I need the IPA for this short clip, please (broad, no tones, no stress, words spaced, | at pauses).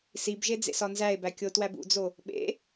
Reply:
sibʒe d͡zḛsɒnzæe̯bæ kʲotwæbṵd͡zo | ɓḛ